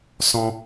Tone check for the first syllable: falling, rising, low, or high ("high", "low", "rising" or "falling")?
high